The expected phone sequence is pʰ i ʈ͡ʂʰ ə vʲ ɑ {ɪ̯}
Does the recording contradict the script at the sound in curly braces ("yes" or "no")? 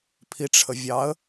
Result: yes